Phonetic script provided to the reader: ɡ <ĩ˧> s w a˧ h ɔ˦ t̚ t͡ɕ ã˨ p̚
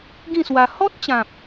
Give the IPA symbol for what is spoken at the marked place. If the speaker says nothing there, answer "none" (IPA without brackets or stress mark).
ĩ˥˧